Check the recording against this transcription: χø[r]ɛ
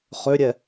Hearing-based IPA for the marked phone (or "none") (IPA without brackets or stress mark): ɾʲ